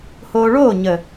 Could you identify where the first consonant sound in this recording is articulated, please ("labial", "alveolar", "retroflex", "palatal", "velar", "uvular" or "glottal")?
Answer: glottal